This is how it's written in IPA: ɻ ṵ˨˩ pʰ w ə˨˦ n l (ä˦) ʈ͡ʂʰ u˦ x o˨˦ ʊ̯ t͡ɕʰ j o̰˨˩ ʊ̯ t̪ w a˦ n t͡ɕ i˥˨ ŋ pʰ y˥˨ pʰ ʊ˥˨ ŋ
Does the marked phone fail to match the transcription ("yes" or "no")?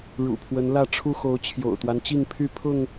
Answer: yes